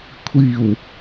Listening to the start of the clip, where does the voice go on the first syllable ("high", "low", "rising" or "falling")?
low